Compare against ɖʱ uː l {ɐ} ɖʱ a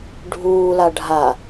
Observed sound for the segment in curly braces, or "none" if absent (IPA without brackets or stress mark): a